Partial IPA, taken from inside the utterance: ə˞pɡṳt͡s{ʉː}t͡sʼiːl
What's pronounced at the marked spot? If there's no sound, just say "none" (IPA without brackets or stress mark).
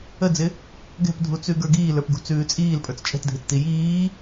ʉː